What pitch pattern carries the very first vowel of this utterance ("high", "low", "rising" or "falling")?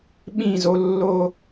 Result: falling